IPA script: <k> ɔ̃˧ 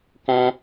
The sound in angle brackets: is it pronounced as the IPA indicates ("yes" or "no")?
yes